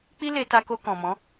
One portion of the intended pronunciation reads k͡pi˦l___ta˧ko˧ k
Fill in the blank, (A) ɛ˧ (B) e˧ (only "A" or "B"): B